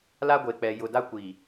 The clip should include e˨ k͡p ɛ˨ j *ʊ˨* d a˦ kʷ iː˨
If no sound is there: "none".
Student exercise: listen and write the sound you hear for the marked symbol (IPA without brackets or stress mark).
ʊ˨